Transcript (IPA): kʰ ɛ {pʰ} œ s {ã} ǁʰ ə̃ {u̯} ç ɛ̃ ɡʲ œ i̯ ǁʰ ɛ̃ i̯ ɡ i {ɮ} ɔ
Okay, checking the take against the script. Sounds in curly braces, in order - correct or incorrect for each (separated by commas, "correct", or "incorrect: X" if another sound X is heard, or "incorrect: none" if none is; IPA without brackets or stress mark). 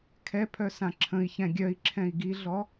correct, correct, incorrect: i̯, correct